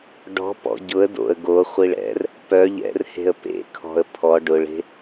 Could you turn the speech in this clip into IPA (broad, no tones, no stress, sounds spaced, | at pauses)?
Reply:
ɖ ɔ̤ p ɔ̰ ɟ ʊ ə̯ d o̰ ə̯ ɡ o χʷ i ɭ ɛ̰ r | p œ ʎ ɛ̰ r h e̤ ə̯ p ḛ kʰ ɔ̤ ə̯ pʰ ɔ ɖ ʊ ɭ e̤